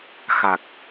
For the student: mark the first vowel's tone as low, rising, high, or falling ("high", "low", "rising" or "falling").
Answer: low